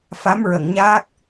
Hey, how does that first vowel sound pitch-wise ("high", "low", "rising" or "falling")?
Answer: rising